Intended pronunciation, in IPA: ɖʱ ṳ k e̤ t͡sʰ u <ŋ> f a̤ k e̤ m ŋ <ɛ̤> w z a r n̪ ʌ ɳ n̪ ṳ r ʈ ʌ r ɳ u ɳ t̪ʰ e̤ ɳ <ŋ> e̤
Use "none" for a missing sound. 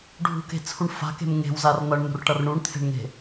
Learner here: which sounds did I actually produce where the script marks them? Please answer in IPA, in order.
ɳ, e̤, ŋ

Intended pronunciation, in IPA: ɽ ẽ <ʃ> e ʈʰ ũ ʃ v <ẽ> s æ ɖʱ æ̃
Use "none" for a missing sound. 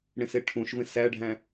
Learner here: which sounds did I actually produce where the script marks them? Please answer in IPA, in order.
s, ẽ

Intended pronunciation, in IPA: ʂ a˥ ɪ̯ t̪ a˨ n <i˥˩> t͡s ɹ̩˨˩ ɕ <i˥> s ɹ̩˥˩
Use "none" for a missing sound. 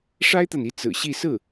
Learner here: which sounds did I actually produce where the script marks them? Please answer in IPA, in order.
i˧˥, i˥˧

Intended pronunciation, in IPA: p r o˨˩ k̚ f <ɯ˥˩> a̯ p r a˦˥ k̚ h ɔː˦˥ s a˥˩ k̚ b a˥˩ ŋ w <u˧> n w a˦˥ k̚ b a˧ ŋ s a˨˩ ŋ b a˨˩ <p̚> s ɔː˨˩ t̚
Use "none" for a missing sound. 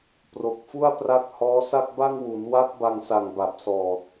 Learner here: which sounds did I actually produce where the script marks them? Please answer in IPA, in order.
u˥˩, u˩˦, p̚

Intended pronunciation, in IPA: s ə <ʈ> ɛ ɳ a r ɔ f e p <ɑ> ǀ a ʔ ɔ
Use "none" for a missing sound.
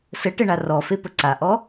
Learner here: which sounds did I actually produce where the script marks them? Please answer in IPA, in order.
ʈ, ə

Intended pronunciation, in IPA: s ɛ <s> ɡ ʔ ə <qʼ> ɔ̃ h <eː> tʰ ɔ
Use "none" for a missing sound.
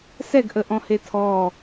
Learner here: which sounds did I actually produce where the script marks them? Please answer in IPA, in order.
none, ʔ, e

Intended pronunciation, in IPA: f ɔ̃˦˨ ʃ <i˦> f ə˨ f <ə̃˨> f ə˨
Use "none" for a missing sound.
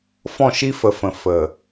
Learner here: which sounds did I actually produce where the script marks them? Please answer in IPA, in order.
i˦, ə̃˨

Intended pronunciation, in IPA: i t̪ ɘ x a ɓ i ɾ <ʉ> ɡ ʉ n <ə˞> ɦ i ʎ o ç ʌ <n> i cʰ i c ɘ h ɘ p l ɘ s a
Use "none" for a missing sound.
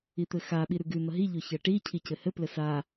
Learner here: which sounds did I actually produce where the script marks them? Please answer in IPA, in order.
ʉ, ʌ, ʈ

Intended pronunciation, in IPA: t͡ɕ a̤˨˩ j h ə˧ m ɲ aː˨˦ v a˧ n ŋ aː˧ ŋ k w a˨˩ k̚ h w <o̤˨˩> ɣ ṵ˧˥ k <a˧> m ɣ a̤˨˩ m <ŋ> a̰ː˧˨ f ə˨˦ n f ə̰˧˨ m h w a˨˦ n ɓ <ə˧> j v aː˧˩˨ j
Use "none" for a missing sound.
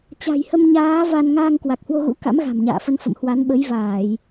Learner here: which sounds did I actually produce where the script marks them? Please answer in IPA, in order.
o˧, a̰˧˥, ɲ, ə˨˦

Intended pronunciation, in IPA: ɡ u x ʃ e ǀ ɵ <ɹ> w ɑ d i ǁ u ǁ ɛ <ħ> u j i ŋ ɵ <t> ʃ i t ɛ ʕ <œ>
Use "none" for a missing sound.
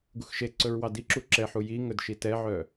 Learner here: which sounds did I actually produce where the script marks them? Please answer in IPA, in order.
ɹ, ħ, d, œ

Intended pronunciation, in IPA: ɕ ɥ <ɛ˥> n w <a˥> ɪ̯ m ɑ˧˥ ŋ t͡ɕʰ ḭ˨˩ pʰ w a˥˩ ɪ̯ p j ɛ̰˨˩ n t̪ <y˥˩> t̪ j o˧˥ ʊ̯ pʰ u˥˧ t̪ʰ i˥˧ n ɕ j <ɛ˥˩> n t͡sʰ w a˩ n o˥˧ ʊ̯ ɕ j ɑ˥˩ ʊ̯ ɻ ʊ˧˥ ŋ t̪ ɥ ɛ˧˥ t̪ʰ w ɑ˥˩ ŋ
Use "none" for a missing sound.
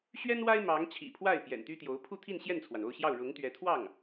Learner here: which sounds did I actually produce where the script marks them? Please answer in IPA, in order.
ɛ˥, a˥, y˥, ɛ˥˩

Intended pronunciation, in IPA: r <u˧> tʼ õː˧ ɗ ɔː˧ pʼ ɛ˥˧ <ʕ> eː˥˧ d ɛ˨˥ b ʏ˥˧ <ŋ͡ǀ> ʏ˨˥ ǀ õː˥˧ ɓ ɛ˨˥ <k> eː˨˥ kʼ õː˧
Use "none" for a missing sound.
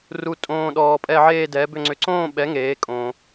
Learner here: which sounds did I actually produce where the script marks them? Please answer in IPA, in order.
u˧, ʕ, ŋ͡ǀ, ŋ

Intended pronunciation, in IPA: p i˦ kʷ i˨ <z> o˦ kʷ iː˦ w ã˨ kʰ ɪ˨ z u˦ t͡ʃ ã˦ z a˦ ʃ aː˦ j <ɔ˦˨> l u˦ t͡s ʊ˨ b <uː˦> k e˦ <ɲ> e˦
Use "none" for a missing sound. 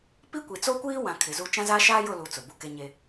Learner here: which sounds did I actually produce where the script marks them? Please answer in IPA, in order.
t͡s, ʊ˦˨, u˦, ɲ

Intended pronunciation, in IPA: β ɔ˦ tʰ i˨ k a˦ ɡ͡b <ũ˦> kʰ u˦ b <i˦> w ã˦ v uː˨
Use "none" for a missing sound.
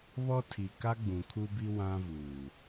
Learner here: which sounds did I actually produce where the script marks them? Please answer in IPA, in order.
ũ˨, i˦

